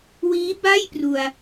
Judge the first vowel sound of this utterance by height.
high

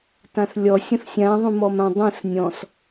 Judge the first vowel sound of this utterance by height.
low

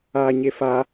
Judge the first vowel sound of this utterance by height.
low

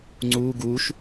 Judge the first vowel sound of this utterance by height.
high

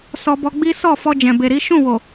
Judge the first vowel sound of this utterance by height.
mid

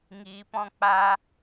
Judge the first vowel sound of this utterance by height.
high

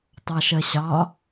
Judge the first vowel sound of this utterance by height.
low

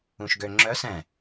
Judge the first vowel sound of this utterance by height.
high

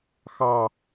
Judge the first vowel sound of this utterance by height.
low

